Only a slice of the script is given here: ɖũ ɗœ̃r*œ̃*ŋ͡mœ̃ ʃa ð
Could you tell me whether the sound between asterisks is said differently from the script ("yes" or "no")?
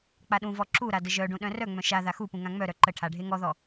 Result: yes